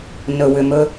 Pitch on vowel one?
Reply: low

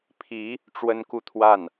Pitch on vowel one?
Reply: rising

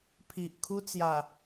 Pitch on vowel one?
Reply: low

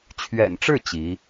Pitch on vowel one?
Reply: low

